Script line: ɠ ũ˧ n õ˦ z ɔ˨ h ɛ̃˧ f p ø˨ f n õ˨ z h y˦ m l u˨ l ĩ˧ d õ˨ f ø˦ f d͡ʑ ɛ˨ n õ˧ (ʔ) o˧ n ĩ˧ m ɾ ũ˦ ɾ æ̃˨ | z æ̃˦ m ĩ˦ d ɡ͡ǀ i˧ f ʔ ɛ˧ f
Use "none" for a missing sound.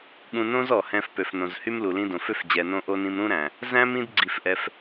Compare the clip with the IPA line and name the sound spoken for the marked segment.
ʔ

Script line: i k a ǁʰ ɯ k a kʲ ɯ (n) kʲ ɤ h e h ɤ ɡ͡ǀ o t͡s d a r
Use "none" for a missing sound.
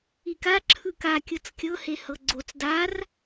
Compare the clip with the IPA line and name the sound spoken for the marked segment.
t͡s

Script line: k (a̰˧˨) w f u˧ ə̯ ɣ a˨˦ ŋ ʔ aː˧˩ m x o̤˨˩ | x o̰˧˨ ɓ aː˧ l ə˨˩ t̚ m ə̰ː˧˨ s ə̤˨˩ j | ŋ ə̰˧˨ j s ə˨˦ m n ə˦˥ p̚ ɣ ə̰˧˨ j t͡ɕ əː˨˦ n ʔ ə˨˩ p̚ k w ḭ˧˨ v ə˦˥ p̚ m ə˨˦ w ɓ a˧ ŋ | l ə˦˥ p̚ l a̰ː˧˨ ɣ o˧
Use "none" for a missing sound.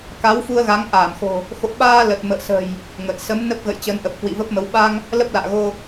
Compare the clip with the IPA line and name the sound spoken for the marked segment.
a˨˦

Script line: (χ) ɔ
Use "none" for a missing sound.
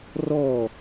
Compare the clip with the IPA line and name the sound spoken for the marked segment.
r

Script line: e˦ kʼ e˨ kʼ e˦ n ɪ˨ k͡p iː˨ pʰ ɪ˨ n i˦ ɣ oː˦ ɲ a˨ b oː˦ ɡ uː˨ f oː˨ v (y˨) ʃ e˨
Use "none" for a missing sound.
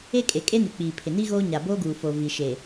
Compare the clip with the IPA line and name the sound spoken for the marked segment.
i˨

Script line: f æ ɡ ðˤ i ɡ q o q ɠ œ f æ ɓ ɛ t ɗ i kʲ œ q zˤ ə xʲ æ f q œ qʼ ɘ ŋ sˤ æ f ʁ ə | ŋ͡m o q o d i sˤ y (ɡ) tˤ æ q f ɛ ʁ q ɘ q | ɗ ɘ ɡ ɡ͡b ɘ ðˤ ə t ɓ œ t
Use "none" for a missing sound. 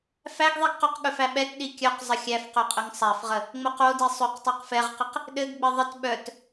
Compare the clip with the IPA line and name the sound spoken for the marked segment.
q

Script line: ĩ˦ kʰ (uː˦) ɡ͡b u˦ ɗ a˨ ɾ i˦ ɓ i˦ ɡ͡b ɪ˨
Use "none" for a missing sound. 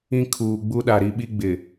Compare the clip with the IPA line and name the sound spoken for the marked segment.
uː˨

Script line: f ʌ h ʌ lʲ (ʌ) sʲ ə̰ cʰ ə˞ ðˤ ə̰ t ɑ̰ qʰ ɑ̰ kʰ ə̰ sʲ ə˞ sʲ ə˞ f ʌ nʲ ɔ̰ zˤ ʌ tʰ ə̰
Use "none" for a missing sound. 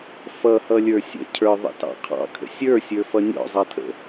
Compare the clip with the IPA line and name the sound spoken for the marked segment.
ə˞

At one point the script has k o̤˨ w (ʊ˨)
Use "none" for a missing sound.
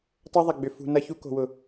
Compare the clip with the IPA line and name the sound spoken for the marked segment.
ʊ˨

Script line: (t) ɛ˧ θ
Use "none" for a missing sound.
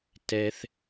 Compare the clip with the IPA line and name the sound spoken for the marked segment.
t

